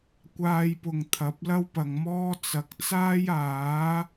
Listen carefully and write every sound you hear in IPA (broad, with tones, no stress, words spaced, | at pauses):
kʷaː˧jpʊ˨ŋ t̪ʰɐ˨˥p̚lɐ˥wpɐ˨ŋmɔː˥ t͡sɐ˨˥k̚t͡saː˥jaː˨˥